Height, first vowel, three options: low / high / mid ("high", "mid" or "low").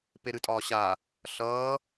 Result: mid